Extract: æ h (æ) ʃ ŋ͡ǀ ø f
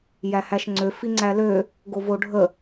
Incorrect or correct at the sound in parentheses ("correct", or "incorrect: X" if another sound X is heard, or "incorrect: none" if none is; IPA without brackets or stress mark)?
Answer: correct